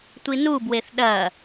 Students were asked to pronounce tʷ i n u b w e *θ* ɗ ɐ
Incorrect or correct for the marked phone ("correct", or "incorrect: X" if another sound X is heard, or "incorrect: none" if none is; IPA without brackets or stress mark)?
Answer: correct